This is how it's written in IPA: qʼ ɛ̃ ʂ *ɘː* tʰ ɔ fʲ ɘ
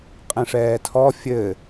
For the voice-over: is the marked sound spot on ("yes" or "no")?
no